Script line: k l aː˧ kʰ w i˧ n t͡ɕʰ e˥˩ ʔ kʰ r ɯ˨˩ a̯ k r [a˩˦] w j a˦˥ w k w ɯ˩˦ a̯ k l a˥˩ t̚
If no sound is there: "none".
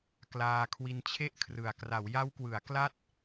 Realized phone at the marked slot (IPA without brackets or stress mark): a˩˦